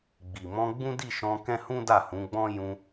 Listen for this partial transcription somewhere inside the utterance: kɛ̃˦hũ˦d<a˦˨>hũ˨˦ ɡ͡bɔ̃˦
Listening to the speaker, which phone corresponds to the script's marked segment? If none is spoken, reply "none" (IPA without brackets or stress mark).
a˦˨